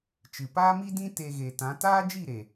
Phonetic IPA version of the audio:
t͡ʃɨ˨paː˦mi˦dĩ˦ te˧ɣe˨tã˨˦ taː˦d͡ʒi˦˨ɾe˨

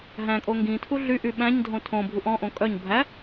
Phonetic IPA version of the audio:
ɦæ̃kʼo ŋɡĩtʰu ɮy ʔyɓæ̃ɲdʱõ tʰõbʱuʔ ɔ̃ʔõ kʼœɲ bʱæ

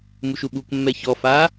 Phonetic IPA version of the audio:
muʃuɓukmːɛ çɔfa

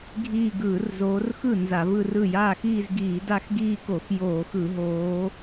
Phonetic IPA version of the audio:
ɡʱiː˥˧ ɡɯː˧˩˧rzoː˨˦rxɯ˥˩ nza˧˩˧vɯ˥˧rɯ˥˩ jaː˥˩x iː˥˧zɡiː˧˩˧ da˥˧xɡiː˥˧ko˧˩˧x joː˧˩˧x ɯ˧˩˧ɦoː˨˦

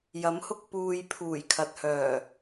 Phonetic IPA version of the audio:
jɐ˨˥mhʊ˧k̚ puː˨j pʰuː˨˩jkʰɐ˨t̚hœː˨˩

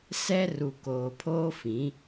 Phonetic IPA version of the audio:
sɛ˦ ru˨koː˨pʰoː˦ fĩ˨˦

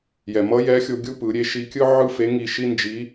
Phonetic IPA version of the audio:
jɛ˩mʌ˧˥jɛ˧˥xʲo˧ ɡʲu˥pɯ˩˧ɾʲe˧˥ ʃi˧kʲɯ˥ʕɯ˥ fe˧˥ŋi˧ ʃi˥nd͡ʒi˧˥

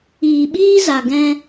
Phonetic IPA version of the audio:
iː˨ɓiː˦za˨ ɡɛ̃˦

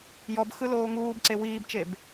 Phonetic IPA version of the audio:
jɔbxɯ loːŋuːbǀe wiːbt͡ʃeb

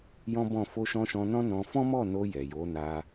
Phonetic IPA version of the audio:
jɔ̃˦bɔ̃˦˨ fo˧ʃɔ̃˧ʃɔ̃˧ nɔ̃˦nɔ̃˧ fɔ̃˦mɔ˦˨no˧ jɛ˨jo˨˦na˧

